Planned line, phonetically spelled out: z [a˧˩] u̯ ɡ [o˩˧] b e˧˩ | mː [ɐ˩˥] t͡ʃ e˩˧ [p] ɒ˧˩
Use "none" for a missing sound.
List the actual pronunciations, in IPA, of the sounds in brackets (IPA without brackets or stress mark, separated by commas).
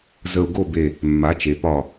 ə˧˩, o˥˨, a˩˥, p